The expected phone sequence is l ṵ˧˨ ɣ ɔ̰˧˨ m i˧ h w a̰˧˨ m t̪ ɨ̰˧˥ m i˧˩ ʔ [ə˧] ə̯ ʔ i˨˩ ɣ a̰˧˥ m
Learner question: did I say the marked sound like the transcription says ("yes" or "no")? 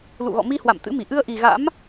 no